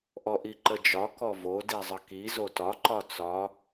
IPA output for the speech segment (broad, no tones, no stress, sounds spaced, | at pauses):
ʔ ɔ ʔ i ǃ ə d͡ʒ ɒ k ɔ v o d i zˤ ə k i z o t ɒ ǃ ɒ t͡s ɒ